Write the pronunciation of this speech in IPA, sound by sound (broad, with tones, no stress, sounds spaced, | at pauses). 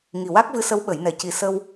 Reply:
ŋ i˨˩ w a˦˥ k̚ v ɨ˧˥ s ə˧˥ w ɓ ə˨˩˦ j n ɛ˨˩ c i˨˩˨ s ə˧ w